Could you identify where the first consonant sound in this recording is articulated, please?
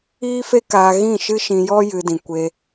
labial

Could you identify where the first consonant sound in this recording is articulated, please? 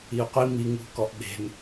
uvular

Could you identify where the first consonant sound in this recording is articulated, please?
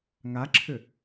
velar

